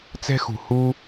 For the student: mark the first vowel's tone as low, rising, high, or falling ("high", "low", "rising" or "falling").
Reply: high